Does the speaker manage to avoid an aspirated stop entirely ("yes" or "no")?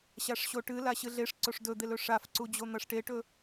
yes